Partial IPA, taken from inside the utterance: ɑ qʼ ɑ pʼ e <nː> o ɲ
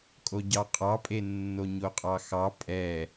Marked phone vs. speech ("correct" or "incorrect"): correct